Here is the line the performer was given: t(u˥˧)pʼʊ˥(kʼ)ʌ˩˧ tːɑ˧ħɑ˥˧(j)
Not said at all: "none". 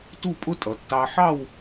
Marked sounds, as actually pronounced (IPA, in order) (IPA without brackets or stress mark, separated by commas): u˥˧, tʼ, w